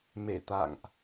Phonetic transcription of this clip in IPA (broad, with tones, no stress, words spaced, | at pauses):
me˧˩t̪a̰˧˨ŋʔ